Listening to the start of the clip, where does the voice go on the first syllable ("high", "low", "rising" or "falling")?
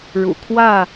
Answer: low